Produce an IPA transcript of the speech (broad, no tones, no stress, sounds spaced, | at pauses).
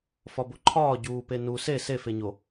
f ɒ b o ǃʰ ɒː ɟ uː p e n u s e s e f e ɲ o